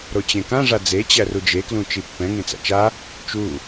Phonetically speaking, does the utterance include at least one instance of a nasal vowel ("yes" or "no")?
yes